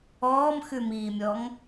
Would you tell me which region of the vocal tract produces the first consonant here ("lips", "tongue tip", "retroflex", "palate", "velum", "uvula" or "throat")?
lips